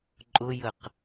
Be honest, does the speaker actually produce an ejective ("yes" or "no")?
yes